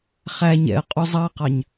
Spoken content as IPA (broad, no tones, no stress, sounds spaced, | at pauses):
χ æ ɲ ɛ̰ ə̯ qʼ u zˤ ɑ q ɑ ɲ